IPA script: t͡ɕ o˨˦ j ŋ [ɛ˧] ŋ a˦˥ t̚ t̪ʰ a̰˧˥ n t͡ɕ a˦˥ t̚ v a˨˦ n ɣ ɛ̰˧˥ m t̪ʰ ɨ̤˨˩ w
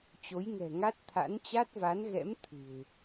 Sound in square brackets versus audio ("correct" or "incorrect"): incorrect